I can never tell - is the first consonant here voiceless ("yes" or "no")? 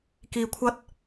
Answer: yes